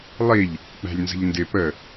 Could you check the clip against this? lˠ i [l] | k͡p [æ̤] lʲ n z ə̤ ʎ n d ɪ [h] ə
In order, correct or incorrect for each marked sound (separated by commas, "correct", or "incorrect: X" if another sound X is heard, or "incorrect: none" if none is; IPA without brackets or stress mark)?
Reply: incorrect: ʎ, correct, incorrect: p